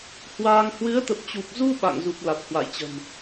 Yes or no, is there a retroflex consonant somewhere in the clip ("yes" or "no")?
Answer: no